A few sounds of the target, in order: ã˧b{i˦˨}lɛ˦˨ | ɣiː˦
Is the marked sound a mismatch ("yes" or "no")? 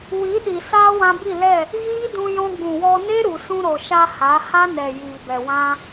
no